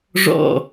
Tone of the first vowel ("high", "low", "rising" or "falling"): falling